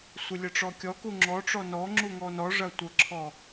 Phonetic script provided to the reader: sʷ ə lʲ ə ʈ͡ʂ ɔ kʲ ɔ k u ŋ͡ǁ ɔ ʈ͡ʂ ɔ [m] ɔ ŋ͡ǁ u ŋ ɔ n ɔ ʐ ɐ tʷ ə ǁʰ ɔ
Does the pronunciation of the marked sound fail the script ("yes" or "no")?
yes